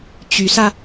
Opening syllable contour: rising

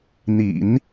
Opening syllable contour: low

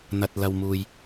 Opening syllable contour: low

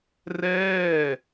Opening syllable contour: falling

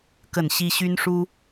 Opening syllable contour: falling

